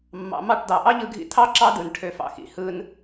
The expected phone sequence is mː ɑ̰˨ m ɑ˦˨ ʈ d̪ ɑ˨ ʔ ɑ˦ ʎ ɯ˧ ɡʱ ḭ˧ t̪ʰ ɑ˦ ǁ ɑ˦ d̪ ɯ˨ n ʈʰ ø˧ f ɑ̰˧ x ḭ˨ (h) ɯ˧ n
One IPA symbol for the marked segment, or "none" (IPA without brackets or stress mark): h